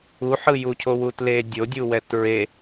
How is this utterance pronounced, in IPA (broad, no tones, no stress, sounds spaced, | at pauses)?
u ħ ɯ j u cʰ o w u t l e dʲ o dʲ u w ɛ t ɹ e